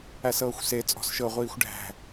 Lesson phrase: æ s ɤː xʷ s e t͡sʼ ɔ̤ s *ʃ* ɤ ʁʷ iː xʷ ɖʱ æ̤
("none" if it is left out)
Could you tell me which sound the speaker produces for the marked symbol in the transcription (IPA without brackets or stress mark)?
ʃ